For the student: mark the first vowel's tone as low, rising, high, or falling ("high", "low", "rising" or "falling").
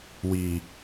low